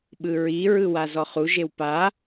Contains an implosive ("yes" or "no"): yes